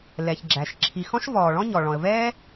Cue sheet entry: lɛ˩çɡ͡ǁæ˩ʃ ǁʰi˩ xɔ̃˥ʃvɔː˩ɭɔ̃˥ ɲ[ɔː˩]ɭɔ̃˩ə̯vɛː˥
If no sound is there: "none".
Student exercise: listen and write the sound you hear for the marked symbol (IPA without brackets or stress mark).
ɔ˩